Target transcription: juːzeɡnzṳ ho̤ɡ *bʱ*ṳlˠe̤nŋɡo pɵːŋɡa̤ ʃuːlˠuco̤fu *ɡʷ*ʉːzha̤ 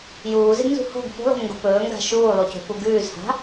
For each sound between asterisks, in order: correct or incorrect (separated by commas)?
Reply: incorrect, incorrect